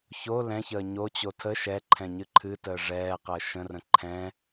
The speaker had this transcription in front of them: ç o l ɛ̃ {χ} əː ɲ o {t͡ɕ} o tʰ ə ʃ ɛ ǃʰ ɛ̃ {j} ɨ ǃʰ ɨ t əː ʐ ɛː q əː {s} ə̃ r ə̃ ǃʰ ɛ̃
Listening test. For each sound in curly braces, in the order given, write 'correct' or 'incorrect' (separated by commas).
incorrect, correct, incorrect, incorrect